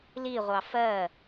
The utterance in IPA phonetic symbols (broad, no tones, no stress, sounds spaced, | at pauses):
l i ʁʷ ɑ f ɜ